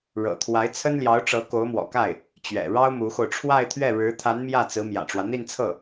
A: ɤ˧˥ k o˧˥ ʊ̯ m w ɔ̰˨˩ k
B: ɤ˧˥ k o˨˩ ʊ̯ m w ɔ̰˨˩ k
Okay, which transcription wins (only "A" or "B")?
A